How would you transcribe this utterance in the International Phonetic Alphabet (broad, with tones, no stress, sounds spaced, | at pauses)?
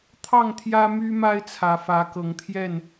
t̪ʰ ɑ˥˨ ŋ t̪ʰ j ä˦ m y˦ m a˦ ɪ̯ t͡sʰ ä˨˦ f ä˨˦ k ɤ˨˦ ŋ t̪ʰ j ɛ˥˨ n